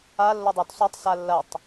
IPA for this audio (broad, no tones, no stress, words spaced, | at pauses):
a lːodˤɵt sˤotˤsa lːɐtˤ